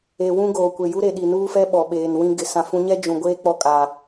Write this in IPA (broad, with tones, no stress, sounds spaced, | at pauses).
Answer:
e˨ w ũ˦ ɡ oː˨ kʷ e˨ j u˦ ɾ e˨ ɗ i˨ n uː˦ f ɛ˦ ɓ ɔ˨ ɓ eː˨ n w ĩ˦ ɡ ɪ˨ s ã˨ f ũ˨˦ ɲ ɛ˦ d͡ʒ ũ˨ ɡʷ eː˦ k͡p ɔ˦ kʼ a˨